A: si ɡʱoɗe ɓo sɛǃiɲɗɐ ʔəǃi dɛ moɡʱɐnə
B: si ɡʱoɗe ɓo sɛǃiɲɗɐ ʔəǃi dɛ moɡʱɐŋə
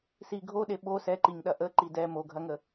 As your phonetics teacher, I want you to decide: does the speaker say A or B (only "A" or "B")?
B